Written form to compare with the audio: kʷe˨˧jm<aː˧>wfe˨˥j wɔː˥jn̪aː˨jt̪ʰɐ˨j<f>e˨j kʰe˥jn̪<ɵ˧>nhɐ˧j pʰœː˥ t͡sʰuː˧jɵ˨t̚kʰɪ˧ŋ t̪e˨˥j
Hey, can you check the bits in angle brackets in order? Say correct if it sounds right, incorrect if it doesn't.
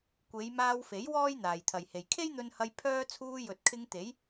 correct, incorrect: h, correct

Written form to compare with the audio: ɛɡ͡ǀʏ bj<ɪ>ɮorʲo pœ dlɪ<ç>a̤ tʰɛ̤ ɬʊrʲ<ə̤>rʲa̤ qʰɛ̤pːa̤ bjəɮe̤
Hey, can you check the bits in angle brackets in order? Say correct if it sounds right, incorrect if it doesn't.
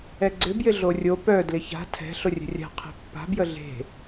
correct, correct, correct

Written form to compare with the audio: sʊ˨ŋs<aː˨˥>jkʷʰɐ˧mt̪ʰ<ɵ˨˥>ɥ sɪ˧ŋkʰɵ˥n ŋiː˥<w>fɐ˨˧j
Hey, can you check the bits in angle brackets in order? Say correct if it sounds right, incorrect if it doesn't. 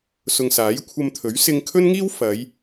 correct, correct, correct

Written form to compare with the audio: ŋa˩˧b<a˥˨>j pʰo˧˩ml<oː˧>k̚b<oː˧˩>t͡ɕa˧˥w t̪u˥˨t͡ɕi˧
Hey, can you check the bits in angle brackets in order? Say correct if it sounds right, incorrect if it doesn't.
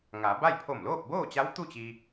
correct, incorrect: oː˥˨, incorrect: oː˥˨

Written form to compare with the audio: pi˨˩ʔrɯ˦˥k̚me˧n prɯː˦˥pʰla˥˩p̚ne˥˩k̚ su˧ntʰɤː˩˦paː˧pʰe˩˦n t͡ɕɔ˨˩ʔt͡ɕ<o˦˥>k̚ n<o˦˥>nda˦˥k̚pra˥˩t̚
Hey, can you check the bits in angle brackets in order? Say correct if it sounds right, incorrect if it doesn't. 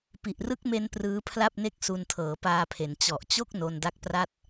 incorrect: o˥˩, incorrect: o˧

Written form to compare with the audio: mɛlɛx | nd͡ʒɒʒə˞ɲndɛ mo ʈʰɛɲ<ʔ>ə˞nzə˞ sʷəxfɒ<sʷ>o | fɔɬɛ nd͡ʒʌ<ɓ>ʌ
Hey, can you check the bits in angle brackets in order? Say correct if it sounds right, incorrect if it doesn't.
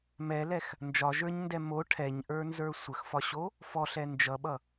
correct, incorrect: ɕ, correct

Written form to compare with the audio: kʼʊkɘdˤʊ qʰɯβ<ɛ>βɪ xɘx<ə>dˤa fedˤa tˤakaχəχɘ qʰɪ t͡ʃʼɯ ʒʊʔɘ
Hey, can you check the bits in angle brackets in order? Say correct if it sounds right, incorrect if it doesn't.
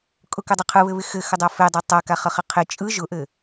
incorrect: ɘ, correct

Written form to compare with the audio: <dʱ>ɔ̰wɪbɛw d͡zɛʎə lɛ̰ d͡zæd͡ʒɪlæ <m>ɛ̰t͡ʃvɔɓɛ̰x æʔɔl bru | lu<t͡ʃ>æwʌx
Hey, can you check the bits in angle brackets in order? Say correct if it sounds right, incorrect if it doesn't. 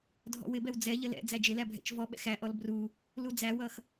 correct, incorrect: bʱ, incorrect: d͡z

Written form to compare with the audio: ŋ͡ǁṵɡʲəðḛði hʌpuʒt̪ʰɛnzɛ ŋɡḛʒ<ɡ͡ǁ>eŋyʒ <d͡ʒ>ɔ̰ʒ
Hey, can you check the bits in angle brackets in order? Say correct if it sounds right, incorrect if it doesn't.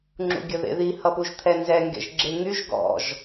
correct, incorrect: ɡ

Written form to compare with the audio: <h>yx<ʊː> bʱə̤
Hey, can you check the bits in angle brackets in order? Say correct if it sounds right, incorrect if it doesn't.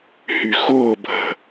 correct, correct

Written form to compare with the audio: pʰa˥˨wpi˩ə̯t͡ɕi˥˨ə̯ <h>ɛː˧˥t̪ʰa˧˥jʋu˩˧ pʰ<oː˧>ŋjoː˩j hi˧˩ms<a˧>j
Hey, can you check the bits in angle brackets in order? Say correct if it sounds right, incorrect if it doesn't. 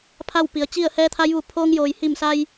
correct, correct, correct

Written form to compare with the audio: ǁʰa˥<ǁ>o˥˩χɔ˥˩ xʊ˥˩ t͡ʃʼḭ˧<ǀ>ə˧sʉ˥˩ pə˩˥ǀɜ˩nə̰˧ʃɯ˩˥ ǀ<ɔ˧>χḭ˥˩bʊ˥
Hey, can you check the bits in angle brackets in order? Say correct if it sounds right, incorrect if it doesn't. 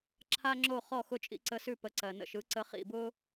incorrect: ŋ͡ǁ, correct, incorrect: ə˧

